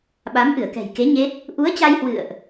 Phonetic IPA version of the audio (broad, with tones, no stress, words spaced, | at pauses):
ɓa˨˦mʔɨ˧˩ə̯kɛ̤˨˩jke˨˦ ɲe˦˥t̚ | ʔu˨˦ə̯t͡ɕa˧jhwɨ̰˧˨ə̯ʔ